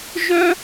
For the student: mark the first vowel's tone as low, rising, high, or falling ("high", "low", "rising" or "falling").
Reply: high